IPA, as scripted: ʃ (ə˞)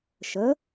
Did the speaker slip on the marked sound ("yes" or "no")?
yes